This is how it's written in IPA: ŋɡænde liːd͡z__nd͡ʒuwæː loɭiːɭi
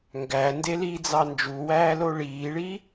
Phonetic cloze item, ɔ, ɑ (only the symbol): ɑ